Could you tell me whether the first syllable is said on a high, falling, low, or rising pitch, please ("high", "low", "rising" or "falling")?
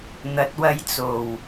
rising